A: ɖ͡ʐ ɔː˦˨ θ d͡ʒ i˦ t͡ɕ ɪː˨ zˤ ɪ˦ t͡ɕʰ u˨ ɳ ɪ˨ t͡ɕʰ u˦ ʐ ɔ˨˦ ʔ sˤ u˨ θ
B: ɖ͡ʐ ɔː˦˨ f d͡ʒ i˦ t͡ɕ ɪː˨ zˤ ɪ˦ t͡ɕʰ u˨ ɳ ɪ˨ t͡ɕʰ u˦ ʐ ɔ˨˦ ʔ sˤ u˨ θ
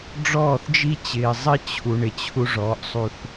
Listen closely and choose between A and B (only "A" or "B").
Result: A